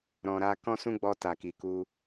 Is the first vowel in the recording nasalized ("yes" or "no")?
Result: yes